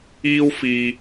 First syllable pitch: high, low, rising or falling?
high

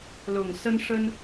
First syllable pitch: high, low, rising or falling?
low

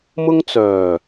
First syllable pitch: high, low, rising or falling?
high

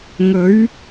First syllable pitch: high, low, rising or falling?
rising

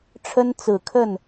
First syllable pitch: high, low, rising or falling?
high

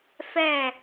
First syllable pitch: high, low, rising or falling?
falling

